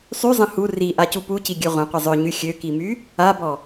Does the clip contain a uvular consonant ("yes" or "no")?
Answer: yes